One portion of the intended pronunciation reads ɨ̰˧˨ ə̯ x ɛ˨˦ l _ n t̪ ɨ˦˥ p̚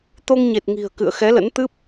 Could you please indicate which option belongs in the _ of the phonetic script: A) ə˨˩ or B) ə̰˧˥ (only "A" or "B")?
B